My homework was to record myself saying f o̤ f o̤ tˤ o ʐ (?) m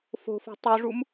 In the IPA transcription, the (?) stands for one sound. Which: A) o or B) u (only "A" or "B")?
B